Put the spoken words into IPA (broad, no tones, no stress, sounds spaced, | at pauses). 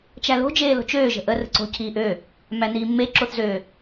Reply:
t͡ʃ æ l o̤ d͡ʒ eː l o̤ t͡ʃ øː ʒ ə̤ ʔ ə r ə̤ ǀ o̤ cʰ iː ʔ ø | m æ n iː mː e ǁ o θ z ø